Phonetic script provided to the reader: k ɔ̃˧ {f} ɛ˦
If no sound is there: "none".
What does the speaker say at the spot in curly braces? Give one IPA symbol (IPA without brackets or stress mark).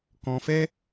f